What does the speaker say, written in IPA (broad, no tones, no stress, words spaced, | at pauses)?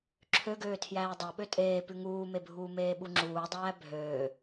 ǁʰøɡøː tʰjæːdˤoɓø tʼeː pʉŋuːmebʱuː meːɓuŋ͡ǁuːdˤæː bʱøː